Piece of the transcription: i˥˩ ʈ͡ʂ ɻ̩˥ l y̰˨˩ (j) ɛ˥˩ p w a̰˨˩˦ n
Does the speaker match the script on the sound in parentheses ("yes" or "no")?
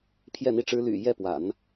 yes